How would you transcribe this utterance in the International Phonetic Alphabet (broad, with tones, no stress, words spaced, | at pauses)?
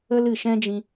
ə˦lɨ˨ʃɛ̃˦d͡ʒĩ˧